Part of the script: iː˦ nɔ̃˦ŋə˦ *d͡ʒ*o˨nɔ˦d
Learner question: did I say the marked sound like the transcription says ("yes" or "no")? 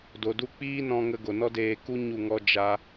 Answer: no